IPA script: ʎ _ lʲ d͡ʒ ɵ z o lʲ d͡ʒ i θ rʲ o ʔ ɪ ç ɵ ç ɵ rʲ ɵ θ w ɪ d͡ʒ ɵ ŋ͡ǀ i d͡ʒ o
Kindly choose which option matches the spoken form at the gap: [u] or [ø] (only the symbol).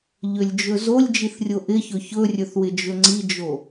ø